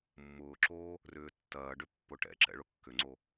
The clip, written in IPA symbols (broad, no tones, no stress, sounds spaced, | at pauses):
mː ʊː ǁ oː | r ʏː tː ɐː ɖ ʏ pː ʊ ʈ ɛ̰ ǁ ɛ̰ ɭ ʊ kː ʏ ŋ͡ǀ o